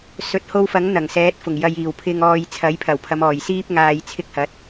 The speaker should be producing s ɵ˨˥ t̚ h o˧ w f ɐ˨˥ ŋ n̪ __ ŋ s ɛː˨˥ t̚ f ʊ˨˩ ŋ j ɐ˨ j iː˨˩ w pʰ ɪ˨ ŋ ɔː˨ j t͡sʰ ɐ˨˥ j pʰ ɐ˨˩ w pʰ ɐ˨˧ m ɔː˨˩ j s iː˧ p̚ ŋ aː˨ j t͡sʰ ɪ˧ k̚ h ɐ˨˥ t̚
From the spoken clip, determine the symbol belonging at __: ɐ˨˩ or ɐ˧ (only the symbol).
ɐ˨˩